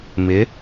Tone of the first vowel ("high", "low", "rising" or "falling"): rising